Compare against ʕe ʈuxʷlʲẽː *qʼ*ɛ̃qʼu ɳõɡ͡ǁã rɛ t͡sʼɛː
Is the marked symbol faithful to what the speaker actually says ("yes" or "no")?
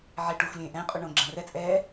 no